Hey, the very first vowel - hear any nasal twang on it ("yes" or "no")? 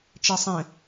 no